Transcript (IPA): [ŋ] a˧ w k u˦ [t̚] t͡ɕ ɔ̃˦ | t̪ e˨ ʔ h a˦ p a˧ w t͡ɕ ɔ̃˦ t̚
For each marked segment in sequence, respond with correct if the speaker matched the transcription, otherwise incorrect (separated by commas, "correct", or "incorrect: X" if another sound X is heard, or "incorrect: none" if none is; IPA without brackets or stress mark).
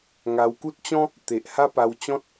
correct, correct